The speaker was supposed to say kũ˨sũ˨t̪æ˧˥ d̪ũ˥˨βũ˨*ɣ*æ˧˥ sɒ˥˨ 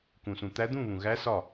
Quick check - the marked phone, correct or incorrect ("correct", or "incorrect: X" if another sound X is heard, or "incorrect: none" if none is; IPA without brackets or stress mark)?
correct